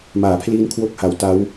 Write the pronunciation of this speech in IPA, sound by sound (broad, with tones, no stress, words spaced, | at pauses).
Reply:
maː˩˦pʰliː˦˥n kʰwo˦˥k̚ha˨˩w ta˦˥w